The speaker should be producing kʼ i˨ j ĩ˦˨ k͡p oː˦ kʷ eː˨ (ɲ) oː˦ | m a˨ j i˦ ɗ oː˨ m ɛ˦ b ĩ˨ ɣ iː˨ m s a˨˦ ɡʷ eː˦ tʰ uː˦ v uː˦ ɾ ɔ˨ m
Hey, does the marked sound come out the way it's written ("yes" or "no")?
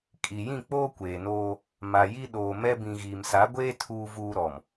no